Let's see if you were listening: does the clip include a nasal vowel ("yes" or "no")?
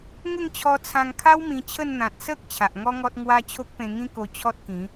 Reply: yes